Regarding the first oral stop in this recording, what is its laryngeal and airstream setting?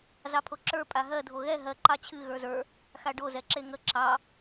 aspirated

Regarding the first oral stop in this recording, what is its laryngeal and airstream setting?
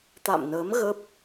plain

